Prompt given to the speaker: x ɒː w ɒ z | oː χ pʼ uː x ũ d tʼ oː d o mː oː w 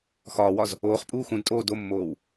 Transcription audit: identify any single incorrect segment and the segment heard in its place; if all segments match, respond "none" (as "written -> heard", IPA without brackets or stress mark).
none